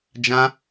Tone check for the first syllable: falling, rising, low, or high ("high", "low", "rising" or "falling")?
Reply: high